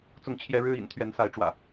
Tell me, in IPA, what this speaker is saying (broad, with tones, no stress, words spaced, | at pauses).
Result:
t͡sʊ˥˨ŋt͡ɕʰjɛ˦ ɻɻ̩˦ ḭ˨˩n t̪ʰɥɛ˨˦nsa˨˦ɪ̯ ʈ͡ʂwä̰˨˩